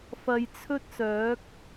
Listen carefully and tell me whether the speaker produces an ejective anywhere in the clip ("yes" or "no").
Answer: no